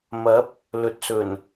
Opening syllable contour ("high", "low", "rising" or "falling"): rising